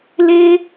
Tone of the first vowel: high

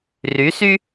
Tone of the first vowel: rising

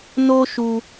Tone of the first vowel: high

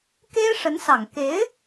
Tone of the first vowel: high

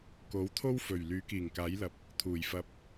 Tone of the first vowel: rising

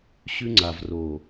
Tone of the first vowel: high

